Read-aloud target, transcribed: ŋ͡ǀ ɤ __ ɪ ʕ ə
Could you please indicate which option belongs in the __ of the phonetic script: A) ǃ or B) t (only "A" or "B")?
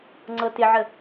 B